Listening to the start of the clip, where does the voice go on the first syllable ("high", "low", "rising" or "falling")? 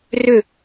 falling